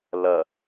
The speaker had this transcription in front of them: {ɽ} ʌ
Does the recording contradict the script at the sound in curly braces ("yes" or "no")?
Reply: yes